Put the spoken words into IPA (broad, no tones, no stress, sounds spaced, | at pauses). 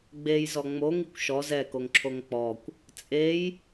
ɡ͡b e j z ɔ ŋ͡m o ŋ i kʷ ʃ ɔ z ɛ k o ŋ ǁʰ o ŋ k͡p ɔ kʷ | t͡sʼ e j